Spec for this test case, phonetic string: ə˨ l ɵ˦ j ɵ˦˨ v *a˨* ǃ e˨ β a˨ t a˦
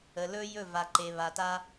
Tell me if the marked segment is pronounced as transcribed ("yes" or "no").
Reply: yes